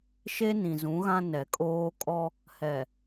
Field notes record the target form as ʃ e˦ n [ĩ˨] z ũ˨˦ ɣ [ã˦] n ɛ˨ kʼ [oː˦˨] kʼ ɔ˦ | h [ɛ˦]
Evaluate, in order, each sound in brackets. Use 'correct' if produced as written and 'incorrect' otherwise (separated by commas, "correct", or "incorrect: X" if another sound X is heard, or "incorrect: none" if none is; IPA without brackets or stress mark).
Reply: correct, correct, incorrect: oː˦, incorrect: ɛ˨